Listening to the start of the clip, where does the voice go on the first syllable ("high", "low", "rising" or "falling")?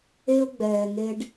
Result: high